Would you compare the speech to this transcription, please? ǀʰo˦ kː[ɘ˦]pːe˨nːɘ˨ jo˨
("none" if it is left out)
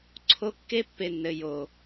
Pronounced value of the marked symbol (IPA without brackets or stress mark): e˦